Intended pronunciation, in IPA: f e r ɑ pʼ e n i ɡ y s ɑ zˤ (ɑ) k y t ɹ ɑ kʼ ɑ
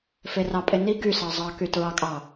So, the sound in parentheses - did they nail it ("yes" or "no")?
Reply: yes